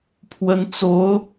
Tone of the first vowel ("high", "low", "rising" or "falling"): rising